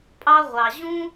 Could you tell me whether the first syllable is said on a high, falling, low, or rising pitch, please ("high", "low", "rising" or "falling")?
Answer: high